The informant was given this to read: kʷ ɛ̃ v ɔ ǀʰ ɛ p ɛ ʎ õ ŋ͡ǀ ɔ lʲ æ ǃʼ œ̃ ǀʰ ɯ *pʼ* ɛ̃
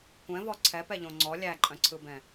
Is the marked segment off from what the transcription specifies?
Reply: yes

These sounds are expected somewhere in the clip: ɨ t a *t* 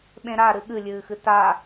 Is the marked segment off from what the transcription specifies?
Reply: yes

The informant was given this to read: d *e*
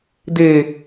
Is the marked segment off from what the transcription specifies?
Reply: no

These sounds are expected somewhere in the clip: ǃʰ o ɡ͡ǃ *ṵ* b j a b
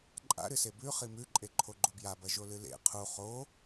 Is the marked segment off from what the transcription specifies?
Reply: yes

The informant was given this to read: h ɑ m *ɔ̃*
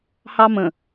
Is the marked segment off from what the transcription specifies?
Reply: yes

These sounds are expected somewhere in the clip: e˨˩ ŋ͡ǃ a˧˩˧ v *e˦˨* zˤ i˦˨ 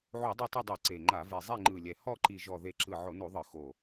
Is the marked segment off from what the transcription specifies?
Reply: yes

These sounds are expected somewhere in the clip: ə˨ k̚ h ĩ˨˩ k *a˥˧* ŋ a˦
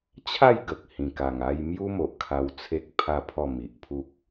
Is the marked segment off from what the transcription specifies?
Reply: yes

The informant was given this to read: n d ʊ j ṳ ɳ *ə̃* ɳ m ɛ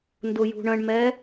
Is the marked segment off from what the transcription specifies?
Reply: no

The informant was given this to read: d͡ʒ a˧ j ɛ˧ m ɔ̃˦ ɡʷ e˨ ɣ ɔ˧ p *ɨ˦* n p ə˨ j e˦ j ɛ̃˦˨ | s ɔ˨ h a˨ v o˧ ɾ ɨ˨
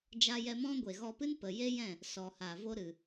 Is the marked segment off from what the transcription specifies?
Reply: no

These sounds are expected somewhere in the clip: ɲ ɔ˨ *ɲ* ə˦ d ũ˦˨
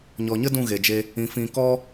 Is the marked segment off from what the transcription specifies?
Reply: no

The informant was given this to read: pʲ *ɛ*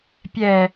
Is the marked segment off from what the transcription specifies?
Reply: no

